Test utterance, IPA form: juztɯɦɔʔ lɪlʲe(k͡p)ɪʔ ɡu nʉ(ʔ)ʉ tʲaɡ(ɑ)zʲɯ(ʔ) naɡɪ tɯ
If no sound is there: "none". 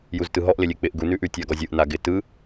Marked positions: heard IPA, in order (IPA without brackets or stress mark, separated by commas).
k͡p, ʔ, ɔ, ʔ